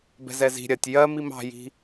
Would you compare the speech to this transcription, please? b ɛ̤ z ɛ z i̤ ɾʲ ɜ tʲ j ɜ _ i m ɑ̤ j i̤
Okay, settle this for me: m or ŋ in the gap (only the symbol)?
m